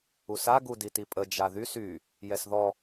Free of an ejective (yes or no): no